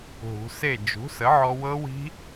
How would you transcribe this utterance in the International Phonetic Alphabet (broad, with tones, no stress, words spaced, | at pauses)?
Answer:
ɦṳ˩˧se˥˨ d͡ʒṳ˩˥sə˩˥ʕɔ˧ wɤ˦˥wi̤˦˥